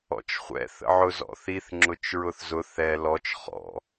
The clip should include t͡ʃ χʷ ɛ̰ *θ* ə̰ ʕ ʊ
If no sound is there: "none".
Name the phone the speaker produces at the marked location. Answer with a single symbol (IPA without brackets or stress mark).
θ